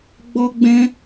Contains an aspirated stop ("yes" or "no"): no